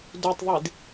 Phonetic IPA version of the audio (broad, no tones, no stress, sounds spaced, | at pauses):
d u tˤ ðˤ i d